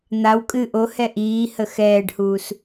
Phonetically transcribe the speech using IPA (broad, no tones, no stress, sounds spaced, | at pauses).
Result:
n̪ a w kʼ ɨ ʔ o h ɛ ʔ iː h ə x ɛː ɖ h uː s